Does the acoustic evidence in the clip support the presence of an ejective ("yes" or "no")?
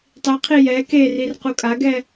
yes